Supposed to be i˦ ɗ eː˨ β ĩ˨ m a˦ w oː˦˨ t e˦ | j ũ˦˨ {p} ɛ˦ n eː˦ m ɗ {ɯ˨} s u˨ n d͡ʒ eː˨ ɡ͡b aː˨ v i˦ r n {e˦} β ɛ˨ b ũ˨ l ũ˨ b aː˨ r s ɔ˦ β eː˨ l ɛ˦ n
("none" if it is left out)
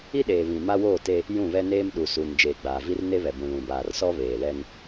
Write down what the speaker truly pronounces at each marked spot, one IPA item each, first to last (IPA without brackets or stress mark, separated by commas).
β, u˨, e˦